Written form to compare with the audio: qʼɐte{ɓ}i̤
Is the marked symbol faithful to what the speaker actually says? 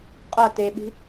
yes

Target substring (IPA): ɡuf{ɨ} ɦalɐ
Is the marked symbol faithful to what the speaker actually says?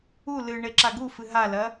yes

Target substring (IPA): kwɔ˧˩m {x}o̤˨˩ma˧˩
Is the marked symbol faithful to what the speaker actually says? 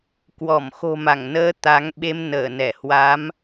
yes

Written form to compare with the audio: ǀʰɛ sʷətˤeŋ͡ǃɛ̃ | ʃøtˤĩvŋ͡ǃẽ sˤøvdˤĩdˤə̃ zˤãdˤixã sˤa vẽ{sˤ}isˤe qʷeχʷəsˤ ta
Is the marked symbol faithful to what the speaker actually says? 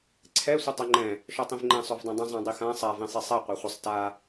yes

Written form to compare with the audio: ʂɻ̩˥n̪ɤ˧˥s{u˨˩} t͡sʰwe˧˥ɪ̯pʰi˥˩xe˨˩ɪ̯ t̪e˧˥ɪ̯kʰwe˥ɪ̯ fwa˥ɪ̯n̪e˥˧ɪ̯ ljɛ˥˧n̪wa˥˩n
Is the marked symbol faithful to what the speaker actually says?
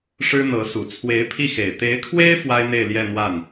yes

